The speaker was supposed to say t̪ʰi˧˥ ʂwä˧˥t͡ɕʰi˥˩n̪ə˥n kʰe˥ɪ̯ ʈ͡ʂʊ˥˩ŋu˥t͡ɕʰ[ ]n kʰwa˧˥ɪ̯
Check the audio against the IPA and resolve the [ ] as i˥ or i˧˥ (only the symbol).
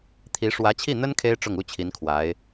i˧˥